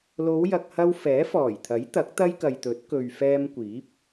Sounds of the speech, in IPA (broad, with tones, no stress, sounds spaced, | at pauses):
l o˨˧ w j ɐ˨ k̚ h ɐ˧ w f ɛː˨˥ f ɔː˨˩ j t̪ʰ ɐ˨˥ j t̪ ɐ˨˥ k̚ t̪ ɐ˥ j k ɐ˨ j t̪ ɵ˨˥ t̚ k ɵ˨ ɥ f ɛː˧ m kʷ iː˨˥ p̚